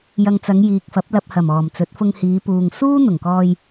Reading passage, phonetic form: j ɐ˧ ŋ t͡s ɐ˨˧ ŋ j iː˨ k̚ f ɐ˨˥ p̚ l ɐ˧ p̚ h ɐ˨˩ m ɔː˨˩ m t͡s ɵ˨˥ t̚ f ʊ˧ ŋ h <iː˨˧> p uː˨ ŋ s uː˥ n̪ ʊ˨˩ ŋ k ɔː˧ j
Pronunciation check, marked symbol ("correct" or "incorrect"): correct